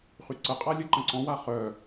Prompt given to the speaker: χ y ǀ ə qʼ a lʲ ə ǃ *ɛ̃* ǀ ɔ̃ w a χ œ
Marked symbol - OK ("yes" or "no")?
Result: no